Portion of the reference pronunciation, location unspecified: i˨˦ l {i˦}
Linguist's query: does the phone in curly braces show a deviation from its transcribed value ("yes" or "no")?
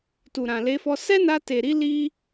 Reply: no